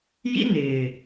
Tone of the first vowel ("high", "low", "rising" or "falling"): high